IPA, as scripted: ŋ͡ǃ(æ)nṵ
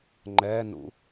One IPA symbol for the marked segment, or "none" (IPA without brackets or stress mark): ɛ